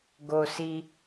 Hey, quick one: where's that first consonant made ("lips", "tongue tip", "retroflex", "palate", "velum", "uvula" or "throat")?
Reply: velum